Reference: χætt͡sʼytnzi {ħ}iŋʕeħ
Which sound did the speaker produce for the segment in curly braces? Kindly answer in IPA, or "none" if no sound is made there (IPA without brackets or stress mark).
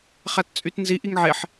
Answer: ʔ